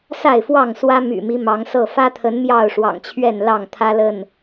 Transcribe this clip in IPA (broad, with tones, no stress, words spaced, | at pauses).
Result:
sa˥˨ɪ̯fwɑ˥˨ŋswä˦ my̰˨˩mi˦ mɑ˨˦ŋsɤ˥˨ fä˦t̪ʰə˨˦n mjɑ˥˨ʊ̯ʂwɑ̰˨˩ŋt͡ɕʰɥɛ˥˨n lɑ˥˨ŋt̪ʰä˦lə˥˨n